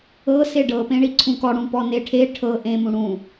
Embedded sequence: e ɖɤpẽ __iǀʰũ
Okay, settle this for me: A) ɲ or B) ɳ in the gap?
B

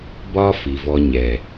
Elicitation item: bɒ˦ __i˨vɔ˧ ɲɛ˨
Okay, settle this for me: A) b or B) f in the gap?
B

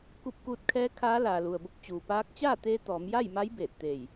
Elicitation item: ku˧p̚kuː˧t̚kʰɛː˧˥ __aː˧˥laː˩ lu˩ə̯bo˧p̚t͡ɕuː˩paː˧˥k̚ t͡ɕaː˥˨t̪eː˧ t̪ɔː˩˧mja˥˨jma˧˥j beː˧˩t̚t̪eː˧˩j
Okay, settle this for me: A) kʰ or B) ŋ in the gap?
A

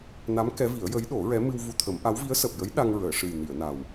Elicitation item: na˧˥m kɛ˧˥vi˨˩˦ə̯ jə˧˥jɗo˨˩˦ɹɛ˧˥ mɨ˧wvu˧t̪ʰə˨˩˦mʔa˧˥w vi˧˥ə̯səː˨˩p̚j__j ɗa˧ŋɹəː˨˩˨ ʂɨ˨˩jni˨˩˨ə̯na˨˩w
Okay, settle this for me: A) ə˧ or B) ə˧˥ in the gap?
B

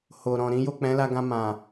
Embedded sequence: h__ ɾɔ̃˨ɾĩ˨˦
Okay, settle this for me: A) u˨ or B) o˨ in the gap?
B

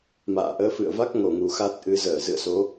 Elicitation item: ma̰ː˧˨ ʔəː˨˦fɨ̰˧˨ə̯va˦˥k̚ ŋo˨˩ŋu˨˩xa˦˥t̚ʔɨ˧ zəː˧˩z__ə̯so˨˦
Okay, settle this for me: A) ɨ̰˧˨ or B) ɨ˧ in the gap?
A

